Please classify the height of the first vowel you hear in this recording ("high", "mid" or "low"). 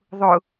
high